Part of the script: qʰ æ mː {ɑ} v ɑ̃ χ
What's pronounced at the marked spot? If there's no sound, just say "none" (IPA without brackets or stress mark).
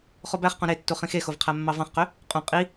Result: ɑ